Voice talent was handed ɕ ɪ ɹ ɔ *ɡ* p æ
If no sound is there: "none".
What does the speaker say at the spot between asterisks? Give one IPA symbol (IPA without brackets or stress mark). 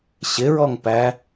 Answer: ŋ